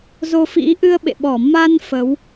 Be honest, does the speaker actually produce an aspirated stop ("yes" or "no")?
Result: no